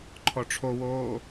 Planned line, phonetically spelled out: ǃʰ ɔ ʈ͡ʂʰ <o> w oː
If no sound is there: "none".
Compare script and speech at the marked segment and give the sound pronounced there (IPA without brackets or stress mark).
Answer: o